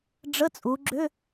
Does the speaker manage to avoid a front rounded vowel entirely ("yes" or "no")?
no